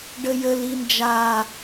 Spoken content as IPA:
ɖ ə j ə l i n d͡ʒ a

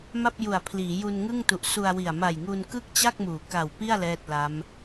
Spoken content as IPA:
m a˥˩ p̚ j u˨˩ a̯ pʰ l iː˩˦ j u˧ n ŋ ɯ˥˩ ŋ t u˨˩ ʔ s u˧ a̯ w i˨˩ a̯ m a˨˩ j ŋ u˧ n k ɯ˥˩ k̚ t͡ɕ a˥˩ k̚ m uː˩˦ k a˨˩ w p i˥˩ a̯ l ɛː˥˩ t̚ l a˦˥ m

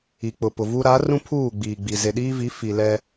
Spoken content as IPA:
i˨ k͡p ʊ˨ p ʊ˨ v u˦ ɾ a˨˦ r ũ˦ pʰ uː˦˨ ɡ͡b iː˨ ɡ͡b i˨ z e˨ ɗ iː˦ v i˨˦ f i˨ l ɛ˦

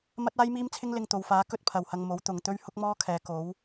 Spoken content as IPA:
m ɐ˥ t̚ aː˥ j m iː˥ m t͡sʰ ɪ˥ ŋ l ɪ˧ ŋ t̪ o˨˧ w f aː˨˥ k ɵ˥ t̚ pʰ ɐ˨ w h ɐ˧ ŋ m o˨˥ w t̪ ʊ˨ ŋ t̪ ɵ˥ ɥ h ʊ˥ k̚ m ɔː˥ kʰ ɛː˨˧ k o˨˥ w

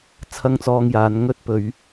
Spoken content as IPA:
t͡sʰ ɐ˥ ŋ t͡s ɔː˧ ŋ j aː˨˧ n ŋ ɵ˥ t̚ p ɵ˨˧ ɥ

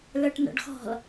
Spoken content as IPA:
l ə˞ ʈ n o̰ ɖ x ɔ̤ l

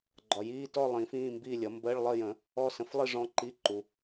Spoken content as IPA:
ɡ͡ǃ ɒ˨ j iː˧˥˧ t ɔ˥˧ lˠ ĩ˨˩˦ f ĩː˧˥˧ m b iː˥˧ lʲ ʌ˩˥ m b ə˧˥˧ ɭ lˠ ə˥˧ j ə̃˨˩˦ | ɔ˦˥ s ə̃˩˥ f lˠ i˥˧ ʐ ɔ̃˦˥ ǃ i˧˥˧ ǃ u˨

